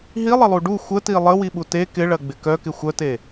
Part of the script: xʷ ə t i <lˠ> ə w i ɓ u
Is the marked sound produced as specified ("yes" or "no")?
yes